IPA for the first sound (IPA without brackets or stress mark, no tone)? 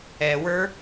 ɛ